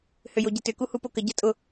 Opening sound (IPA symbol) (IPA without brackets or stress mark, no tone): h